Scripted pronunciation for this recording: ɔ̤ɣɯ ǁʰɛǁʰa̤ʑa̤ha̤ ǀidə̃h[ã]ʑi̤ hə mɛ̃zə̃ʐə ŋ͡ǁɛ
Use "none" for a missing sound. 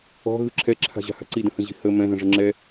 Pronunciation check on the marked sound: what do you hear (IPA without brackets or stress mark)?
ə̃